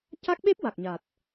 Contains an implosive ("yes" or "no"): yes